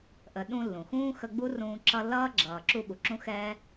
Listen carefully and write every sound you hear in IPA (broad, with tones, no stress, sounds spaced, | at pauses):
ʔ ə˨ ɗ ũ˦ lː ũ˩ x ũː˥ x ə˦ ɡ͡b u˥ r ũː˦ ǁ ʌ˦ lː ʌː˥ ɡ͡ǁ ʌː˨ ǁ u˦ ɓ u˨ ǁ ũ˥ x ɛː˥